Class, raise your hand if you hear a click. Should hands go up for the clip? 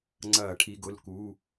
yes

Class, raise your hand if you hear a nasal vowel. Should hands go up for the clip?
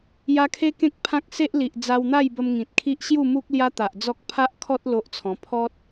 yes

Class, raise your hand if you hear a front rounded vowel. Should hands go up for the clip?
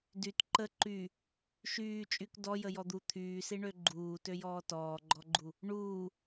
yes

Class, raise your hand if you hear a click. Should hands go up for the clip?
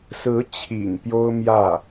no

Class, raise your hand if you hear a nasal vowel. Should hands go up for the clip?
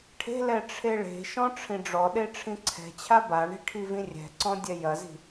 yes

